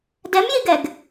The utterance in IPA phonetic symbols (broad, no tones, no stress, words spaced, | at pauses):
dɛmjiɡɛɡ